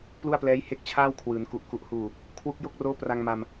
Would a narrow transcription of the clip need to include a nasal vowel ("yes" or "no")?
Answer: no